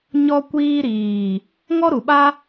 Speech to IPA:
ɲɔ˧kʷiː˧ɾiː˨ | ŋɔ˦ɾu˨ɓa˦

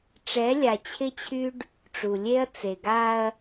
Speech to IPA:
ʈ͡ʂɛ˨˦lʲa˨t͡ɕʰɪ˦t͡ɕʰy˦ɖ | ʈ͡ʂu˨lʲe˦ɐ̯ t͡se˨ɡa˦ɐ̯

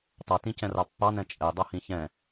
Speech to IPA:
tˤʌtĩcɛ̃rɑ pːɑnɛ̃ t͡ʃʼɛdˤʌhĩ çɛ̃

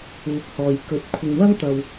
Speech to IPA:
uː˨˥k̚hɔː˨jkɵ˨˥t̚ kʷʰɪ˨ŋwɐ˥ŋt̪ɐ˧w

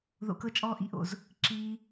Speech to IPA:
ðo̰˧kɤ˦t͡ʃʼɔː˦ ʔḭ˦ʔo̰˨z | ǁiː˧

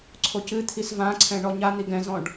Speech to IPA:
ǀʰocɨt̪ʰis vãǀʰɛ̃ ɳɔɲan̪i ɡɛ̃zɔ̃ɖ

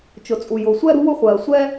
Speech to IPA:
t͡ʃʊ˩t͡sʼu˩ jʊː˩sʷɛ˥ɾṳ˥ wʊ˥χʷɜː˩ sʷɛ˥

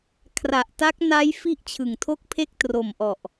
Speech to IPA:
kʰra˨˩ʔta˦˥k̚ na˦˥j fi˥˩ʔt͡ɕʰɯ˨˩ŋtʰo˥˩k̚pʰe˥˩k̚ tro˨˩mʔɔ˨˩ʔ

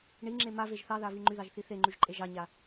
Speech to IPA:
ɳiŋ͡ǁe maveʒ θɑðavi ŋ͡ǃyðɑʒθi θeŋ͡ǃyʒǃʼe ʒɑɲa

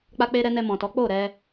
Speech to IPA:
k͡pa˧k͡pe˧ɾɛ˧ nɛ˧mɔ̃˨tɔ˨˦ k͡po˦˨ɾɛ˧

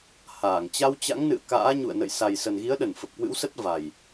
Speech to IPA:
haː˧˩ŋ t͡ɕa˧wt͡ɕa̰˧˥ŋnɨ̰˧˨ə̯ ka̰ː˧˥ɲṵ˧˨ə̯nə̰˧˨j sa˨˩jsə˨˩nɣi˨˦ə̯ɗə˧˩n fə˨˩p̚kwɨ̰˧˥wsə˦˥t̚ va˨˩j

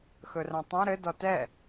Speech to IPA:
xɵrãtˤã ɾɘ dɔtɛ

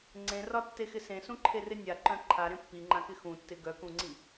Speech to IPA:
ŋ͡ǀẽrɒtːexɪ sẽsũǃʰerɪ nʲaǃœ̃ ǃʰaɾẽ pːiŋ͡ǃãkɪ xũtːɪ ɡœkũŋ͡ǀi

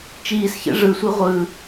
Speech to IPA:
t͡ʃiːsçɛ̰ ʐɯsʷi ʁʷɯ

